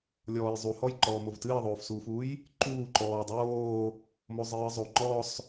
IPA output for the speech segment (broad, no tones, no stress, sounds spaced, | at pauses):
lʲ ɔː j zˤ u h ɔ j ǃ ɔː m o v t ɨː ə̯ ðˤ oː f s uː f uː j | ǃ uː ǃ ɔː dˤ oː | m o zˤ ɨː ə̯ zˤ o ŋ͡ǃ ɔ sˤ